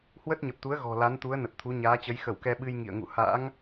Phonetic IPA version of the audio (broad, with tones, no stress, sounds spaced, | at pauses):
h w ə˦˥ t̚ ɲ ə˨˩ p̚ t̪ u˨˦ ə̯ ɣ ɔ̤˨˩ l a˨˦ n t̪ u˨˦ ə̯ n ə˨˩ t̚ t̪ʰ u˨˦ ɲ aː˨˦ t͡ɕ ə˨˦ j x ə˧˩ w k ɛ˧ ɓ ɨ˧ j ŋ ḭ˧˨ ə̯ ŋ ṵ˧˨ h a̰ː˧˥ ŋ